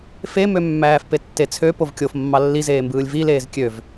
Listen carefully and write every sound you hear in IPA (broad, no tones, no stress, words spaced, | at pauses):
femømːæːf petːet͡sʰø povkʲofmːɑ lːizeːmbɯːlʲ vi leːzkʲøv